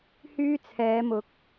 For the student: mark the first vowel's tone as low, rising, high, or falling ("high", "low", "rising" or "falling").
high